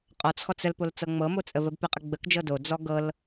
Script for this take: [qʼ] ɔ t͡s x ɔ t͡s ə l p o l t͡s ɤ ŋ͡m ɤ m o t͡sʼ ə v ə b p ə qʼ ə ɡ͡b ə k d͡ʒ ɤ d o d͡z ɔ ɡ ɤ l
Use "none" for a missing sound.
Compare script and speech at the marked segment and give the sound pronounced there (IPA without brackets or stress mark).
qʼ